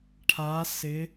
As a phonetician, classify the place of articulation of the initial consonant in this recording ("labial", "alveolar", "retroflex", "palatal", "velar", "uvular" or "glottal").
retroflex